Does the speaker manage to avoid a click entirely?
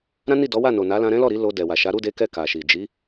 yes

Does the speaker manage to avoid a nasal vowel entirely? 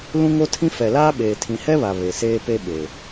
no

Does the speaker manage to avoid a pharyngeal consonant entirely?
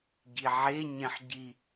no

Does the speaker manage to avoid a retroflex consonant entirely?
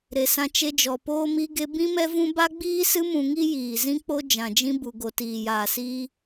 yes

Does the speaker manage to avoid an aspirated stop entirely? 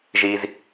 yes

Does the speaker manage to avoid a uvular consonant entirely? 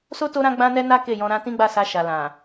yes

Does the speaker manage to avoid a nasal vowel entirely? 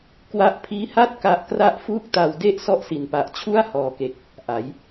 yes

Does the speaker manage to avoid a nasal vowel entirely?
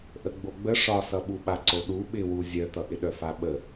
yes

